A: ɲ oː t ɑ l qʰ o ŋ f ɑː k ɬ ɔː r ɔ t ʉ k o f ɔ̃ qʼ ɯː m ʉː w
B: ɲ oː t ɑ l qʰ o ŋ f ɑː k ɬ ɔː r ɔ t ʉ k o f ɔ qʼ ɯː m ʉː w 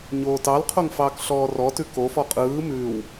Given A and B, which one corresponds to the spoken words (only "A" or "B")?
B